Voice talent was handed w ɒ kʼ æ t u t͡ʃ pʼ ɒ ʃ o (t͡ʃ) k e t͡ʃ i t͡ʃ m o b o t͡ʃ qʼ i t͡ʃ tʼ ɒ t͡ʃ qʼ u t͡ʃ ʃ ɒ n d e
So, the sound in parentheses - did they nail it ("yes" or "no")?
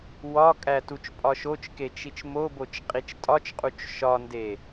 yes